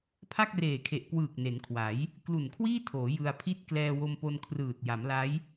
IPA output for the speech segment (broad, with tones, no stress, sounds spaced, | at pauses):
pʰ a˥˩ k̚ r eː˨˩ kʰ e˨˩ ʔ k w ɯː˨˩ k̚ n e˩˦ n kʰ w a˩˦ j | k l u˨˩ n kʰ w iː˥˩ tʰ oː˩˦ j ɯ˧ a̯ pʰ i˥˩ t̚ k l ɛː˧ w o˧ m p o˧ n kʰ r ɯː˨˩ t̚ j a˩˦ m l a˦˥ j